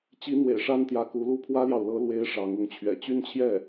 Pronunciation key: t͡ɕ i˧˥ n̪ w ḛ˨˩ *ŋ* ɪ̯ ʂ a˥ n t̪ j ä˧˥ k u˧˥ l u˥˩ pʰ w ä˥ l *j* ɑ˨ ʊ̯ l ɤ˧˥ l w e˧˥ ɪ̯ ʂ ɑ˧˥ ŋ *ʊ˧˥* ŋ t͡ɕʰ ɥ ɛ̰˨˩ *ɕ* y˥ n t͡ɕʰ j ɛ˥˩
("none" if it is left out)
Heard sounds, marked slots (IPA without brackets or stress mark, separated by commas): none, j, ʊ˧˥, t͡ɕ